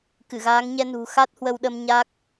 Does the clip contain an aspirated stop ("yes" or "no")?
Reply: no